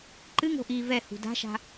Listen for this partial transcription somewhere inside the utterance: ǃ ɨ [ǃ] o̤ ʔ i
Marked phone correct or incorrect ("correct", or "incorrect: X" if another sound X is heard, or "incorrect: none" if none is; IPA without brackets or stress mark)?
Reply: incorrect: ŋ